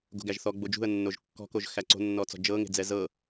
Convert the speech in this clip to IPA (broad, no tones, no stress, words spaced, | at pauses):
ɡo̤ɡæʒθɔ ɡ͡bod͡ʒṳə̯nːoʒ kːɔ̤koʒ xæǀo̤nːɔt͡sɔ̤ d͡ʒɤ ŋe̤d͡zɛzɤ